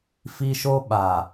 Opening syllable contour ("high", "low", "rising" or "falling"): high